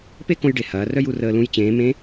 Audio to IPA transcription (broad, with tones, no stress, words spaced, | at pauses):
pe˥kõ˧jɖe˩ hɐː˩˧rœ˥j u˩˧rəː˧lũ˧˥j t͡ɕẽː˩˧mẽ˧˥